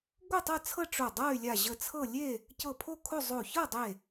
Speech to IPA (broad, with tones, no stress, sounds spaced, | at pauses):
ɡʷ ɤ˥˨ tˤ ɤ˥˨ t͡sʰ ɤ˥˨ ʈ͡ʂ o˧˩ dˤ ɤ˥˨ y̯ lʲ a˧˩ ʑ ə˧˩ t͡sʰ ɤ˥˨ lʲ e˥˨ | c ɤ˧˩ pʰ o˥˨ kʰ o˥˨ zˤ o˧˩ ç ɤ˥˨ dˤ e˧˩